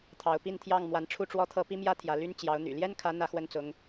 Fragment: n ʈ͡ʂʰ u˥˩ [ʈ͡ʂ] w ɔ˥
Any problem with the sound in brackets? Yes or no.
no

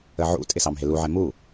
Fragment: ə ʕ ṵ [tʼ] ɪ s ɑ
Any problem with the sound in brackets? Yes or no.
no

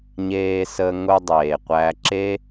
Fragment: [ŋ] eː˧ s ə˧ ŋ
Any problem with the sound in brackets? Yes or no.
yes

